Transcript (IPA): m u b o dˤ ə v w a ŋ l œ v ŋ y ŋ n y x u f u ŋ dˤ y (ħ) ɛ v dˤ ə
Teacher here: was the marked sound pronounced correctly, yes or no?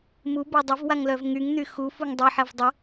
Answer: yes